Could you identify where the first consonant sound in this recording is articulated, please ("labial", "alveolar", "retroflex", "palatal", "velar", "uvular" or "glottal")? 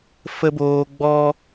labial